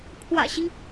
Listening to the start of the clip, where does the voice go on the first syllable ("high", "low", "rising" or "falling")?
low